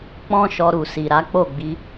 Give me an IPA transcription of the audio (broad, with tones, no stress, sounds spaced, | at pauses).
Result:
k͡p ɔ̃˦ ʃ ɔ˧ ɾ u˨ s i˨ ɾ a˨˦ k͡p o˦˨ ɡ͡b i˧